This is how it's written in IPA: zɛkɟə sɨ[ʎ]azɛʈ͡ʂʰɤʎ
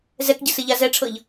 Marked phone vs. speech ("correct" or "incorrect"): correct